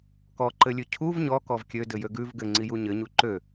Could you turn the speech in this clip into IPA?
kɔǃɘlʲʉ cʰuv ɲɔkɔv kʲødɘjø ɡʉv ɡɘŋ͡ǀiju ɲɘɲu ǃø

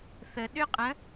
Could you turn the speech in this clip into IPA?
θə ɗʏ qʼə̃

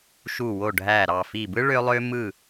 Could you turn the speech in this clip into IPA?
ʃu˧˩wo˧˩ɖʱæ˧˩ ɾɑ˧˩fi˧˩bɯ˥ ɭø˧lˠø˧mɯ˧˩

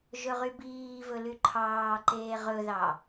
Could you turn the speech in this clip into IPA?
ʒɵʁybiːvɵ lyǃʰɑːǃeː ʁɵðɑ

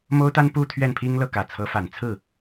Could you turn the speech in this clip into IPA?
mo˥ʊ̯t̪a˥n pu˥˧ t̪ʰɥɛ˥˩npʰi˥ŋlɤ˥˩ kä˨˩t͡sʰɤ˧˥fa˨˩nt͡sʰɹ̩˥˩

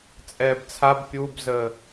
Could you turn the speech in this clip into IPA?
t͡sʼɛːbt͡sʰab pʲubzə

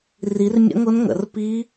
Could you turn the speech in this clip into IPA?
ri˨˥rmʲə̰˦˥ŋʊ˦˥nŋə̰˨˩˦r pi˦˥

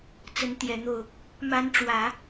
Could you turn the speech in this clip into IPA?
t͡sə˧˥nt̪jɛ˨˩n̪o˥˩ʊ̯ | ma˧˥nʈ͡ʂwä˨˩˦

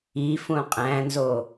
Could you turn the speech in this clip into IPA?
ifũ qʼæ̃nzo

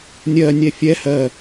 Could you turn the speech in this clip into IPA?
nʲɜnʲɛ fʲɛ hɜ

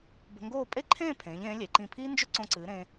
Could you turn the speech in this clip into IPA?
bə̤˧ŋɡoː˥˧ pʼe˥ǃʰẽː˥˧pʰẽː˩˧ʎẽː˩˧ lʲe˩˧ǃĩ˧˩pʰiː˥nd͡ʒʏ˥ ǀõ˧ǀɨː˩˧ɾẽː˧

